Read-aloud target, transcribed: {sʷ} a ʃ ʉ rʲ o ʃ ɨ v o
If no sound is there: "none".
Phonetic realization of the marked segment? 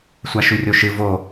sʷ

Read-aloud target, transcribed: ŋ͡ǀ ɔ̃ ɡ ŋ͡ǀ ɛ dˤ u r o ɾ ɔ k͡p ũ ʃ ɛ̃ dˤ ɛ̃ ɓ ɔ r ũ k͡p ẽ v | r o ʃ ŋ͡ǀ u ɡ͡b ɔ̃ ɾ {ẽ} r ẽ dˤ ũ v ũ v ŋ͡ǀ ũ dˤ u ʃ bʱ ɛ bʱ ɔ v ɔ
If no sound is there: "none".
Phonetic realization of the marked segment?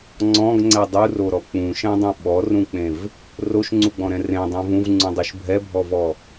ɛ̃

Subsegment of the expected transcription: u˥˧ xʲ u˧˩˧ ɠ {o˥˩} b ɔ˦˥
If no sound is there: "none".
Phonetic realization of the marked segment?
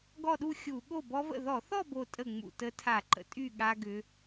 o˥˩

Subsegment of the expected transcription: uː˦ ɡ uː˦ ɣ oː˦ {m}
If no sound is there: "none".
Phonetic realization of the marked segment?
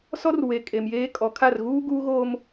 m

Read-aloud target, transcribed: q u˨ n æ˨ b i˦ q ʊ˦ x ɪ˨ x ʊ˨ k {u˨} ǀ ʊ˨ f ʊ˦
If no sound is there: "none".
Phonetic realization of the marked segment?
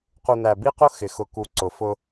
u˨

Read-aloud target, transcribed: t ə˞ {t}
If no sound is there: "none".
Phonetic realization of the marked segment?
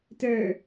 none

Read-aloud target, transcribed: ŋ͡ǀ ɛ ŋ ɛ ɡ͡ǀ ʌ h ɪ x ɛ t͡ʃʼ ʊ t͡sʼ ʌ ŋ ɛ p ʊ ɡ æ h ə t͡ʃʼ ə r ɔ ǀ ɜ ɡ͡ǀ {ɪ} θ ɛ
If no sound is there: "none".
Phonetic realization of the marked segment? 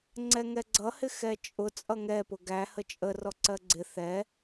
ɪ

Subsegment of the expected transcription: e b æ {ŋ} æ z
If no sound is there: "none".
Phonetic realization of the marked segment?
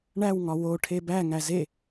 ŋ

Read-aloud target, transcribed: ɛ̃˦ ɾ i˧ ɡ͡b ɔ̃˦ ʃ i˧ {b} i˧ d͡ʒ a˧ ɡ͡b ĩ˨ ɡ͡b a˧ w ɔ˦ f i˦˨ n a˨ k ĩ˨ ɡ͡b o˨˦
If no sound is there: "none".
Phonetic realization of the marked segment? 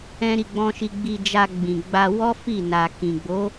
ɡ͡b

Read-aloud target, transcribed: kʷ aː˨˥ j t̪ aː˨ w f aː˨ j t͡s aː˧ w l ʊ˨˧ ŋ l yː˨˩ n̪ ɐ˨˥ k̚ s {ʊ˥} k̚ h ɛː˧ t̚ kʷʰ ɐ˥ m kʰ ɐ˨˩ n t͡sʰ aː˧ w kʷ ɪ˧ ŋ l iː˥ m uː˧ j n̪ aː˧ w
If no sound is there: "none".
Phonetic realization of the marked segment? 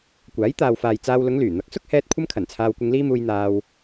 ʊ˥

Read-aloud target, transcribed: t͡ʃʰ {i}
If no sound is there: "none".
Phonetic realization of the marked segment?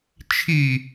i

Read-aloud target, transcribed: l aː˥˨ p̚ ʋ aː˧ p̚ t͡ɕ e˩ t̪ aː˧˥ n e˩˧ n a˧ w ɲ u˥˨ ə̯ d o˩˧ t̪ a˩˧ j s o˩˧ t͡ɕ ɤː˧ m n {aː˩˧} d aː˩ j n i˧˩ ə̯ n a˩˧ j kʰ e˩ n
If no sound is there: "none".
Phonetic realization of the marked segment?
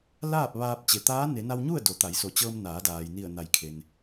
aː˩˧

